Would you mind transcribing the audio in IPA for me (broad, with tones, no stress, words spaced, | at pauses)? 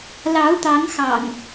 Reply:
lɑ˨˦ʊ̯t̪ɑ˨˦ŋxɑ̰˨˩ŋ